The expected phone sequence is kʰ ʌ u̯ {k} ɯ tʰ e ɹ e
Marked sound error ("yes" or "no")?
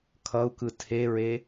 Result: no